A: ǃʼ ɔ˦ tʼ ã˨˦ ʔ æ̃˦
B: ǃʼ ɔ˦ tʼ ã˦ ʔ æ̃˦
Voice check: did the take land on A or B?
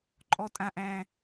B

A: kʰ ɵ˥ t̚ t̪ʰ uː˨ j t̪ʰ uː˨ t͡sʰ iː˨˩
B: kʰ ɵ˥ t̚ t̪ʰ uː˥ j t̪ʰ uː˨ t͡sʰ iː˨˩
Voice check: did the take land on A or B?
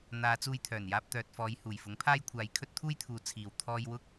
B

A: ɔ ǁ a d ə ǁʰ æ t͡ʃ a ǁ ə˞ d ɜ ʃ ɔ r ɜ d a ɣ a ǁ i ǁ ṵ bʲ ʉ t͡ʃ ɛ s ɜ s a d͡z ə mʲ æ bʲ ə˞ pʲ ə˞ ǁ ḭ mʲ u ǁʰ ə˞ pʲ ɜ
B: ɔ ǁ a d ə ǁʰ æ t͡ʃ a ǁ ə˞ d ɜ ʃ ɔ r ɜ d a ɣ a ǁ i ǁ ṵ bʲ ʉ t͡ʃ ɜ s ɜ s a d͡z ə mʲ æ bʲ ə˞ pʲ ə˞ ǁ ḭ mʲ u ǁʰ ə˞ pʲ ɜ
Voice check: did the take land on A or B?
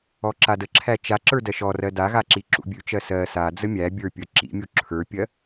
B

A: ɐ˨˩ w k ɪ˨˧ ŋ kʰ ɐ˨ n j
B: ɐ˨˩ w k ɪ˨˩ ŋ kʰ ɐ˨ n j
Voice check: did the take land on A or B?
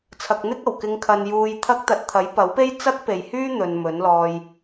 A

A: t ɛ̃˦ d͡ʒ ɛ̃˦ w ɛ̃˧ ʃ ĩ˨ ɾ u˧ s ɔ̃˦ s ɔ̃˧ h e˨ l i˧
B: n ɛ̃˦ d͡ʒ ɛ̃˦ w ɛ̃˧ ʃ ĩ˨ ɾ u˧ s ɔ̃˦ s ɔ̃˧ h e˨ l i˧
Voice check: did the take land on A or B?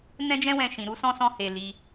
B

